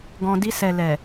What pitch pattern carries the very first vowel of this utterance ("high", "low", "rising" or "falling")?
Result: low